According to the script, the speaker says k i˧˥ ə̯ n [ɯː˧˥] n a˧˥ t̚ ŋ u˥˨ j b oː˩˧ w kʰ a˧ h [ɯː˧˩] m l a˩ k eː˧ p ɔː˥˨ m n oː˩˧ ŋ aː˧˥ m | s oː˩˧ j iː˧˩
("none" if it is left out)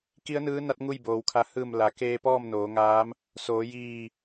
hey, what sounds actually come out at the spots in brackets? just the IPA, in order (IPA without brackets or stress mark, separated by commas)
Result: ɯː˧˥, ɯː˧˩